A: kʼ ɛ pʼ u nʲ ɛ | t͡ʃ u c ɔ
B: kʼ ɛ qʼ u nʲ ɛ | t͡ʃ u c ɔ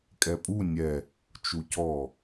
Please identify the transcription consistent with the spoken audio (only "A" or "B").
A